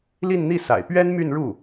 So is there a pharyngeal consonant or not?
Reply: no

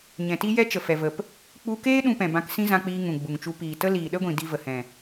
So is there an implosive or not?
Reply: yes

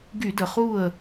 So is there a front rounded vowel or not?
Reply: yes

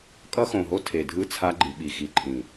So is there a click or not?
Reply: yes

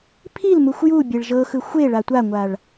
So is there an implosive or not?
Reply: no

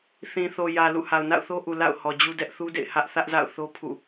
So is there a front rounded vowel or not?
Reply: no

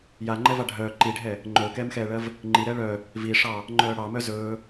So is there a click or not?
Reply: yes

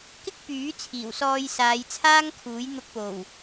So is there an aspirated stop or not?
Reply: yes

